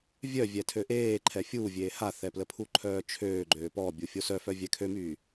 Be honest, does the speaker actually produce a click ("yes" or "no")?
yes